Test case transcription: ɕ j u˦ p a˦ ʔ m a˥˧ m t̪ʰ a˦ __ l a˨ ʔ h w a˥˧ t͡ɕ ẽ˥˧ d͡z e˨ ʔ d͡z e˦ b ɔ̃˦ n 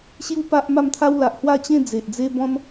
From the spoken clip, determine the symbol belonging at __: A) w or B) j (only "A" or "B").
A